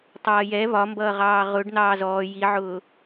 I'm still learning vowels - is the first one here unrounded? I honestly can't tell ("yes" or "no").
yes